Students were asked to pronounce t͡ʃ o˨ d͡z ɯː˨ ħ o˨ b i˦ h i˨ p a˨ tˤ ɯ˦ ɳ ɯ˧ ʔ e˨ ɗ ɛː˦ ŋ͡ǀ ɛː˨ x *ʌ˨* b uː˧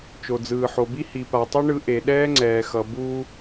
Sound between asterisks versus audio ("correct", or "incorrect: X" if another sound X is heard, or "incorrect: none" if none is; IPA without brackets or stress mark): correct